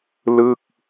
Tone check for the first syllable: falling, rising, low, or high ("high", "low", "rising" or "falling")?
falling